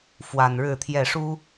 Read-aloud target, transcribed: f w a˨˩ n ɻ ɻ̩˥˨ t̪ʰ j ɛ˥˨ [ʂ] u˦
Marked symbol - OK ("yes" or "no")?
yes